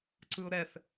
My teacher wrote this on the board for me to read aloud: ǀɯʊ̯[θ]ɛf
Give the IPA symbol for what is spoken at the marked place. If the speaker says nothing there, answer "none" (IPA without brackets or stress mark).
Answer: ɾ